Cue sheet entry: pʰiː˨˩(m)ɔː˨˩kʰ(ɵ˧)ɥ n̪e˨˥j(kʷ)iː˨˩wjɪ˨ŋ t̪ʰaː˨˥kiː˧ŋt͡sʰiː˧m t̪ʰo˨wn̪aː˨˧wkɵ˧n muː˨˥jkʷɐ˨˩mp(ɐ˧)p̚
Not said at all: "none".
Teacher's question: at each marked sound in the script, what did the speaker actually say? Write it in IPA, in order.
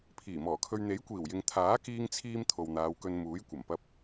m, ɵ˧, kʷ, ɐ˧

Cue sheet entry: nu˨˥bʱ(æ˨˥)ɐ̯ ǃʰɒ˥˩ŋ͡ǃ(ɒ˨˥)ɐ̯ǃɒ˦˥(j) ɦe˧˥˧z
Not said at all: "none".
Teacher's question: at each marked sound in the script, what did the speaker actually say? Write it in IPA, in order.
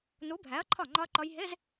æ˨˥, ɒ˦˥, j

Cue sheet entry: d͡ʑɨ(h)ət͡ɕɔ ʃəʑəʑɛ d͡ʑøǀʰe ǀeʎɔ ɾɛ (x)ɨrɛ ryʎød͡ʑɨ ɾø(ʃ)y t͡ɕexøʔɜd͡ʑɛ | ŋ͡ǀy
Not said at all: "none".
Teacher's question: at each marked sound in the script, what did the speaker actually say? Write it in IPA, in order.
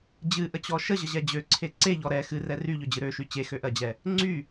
ʔ, x, ʃ

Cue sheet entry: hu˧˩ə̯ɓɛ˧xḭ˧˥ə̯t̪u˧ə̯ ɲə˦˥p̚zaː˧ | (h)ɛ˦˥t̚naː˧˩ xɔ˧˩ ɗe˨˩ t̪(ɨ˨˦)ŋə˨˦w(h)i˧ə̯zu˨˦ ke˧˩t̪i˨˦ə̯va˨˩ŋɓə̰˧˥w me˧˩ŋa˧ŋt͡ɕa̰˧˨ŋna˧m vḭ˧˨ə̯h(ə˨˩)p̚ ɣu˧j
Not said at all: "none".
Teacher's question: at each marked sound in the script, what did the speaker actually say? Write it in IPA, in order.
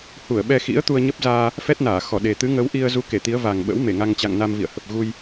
f, ɨ˨˦, ʔ, ə˨˩

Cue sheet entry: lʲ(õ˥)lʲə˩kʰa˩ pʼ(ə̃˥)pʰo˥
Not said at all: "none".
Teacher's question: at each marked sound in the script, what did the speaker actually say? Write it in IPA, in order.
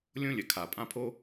õ˥, ã˥

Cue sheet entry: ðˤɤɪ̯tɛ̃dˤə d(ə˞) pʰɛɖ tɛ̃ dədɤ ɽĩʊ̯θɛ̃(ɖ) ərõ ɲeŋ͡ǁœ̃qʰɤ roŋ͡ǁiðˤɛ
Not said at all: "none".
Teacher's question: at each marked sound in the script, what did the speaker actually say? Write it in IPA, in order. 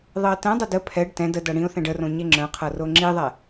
ə, ɖ

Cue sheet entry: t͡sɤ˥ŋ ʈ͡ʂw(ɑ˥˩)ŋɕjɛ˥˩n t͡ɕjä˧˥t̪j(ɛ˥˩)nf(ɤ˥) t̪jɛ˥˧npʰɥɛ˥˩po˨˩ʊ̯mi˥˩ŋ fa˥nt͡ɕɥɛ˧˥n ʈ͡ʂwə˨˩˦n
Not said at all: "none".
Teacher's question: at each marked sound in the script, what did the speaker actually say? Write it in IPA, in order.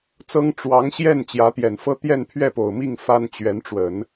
ɑ˧˥, ɛ˨˩, ɤ˥

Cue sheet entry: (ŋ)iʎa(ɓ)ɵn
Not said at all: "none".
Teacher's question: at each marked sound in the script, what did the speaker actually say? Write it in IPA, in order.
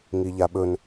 ŋ, ɓ

